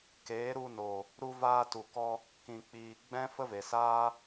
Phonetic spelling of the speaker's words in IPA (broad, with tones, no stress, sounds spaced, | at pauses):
k eː˨˦ ɾ u˧ n o˨ | ɾ u˧ v aː˧ t u˨ k ɔ˧ | k ĩ˨ k͡p iː˨ ɡ͡b ɛ̃˦ f ə˦ v e˨ s aː˦